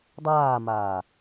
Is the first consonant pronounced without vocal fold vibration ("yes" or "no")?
no